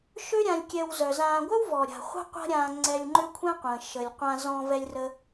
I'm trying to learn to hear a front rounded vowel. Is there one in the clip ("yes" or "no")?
yes